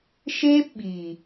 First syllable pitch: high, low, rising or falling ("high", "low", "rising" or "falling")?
high